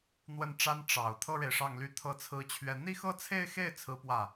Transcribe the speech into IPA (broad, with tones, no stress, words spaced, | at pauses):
n̪wə˥˩nʈ͡ʂa˥n ʈ͡ʂɑ˨˩ʊ̯ t̪ʰɤ˥ɻe˨ɪ̯ʂɑ˥˩ŋly˥ t̪ʰɤ˥t͡sʰɹ̩˥t͡ɕʰɥɛ˥˧ n̪i˥˧xɤ˥˧t͡sʰe˥˧ɪ̯xe˥˩ɪ̯ t͡sʰɹ̩˥pwä˥˩